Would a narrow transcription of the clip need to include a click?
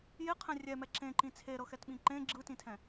yes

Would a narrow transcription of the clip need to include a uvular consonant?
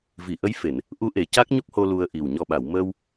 no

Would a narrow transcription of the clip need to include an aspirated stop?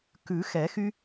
no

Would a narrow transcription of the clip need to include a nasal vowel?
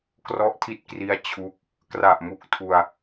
no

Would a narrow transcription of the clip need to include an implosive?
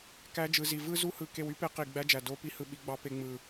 yes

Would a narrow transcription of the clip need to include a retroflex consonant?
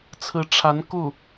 yes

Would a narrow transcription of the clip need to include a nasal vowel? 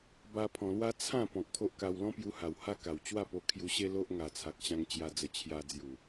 yes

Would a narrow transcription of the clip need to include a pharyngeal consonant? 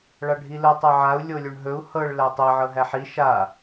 yes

